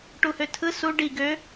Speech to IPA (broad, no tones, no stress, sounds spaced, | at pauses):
ʈ u h ø tʰ ɯ s u ɖ i ɡ ø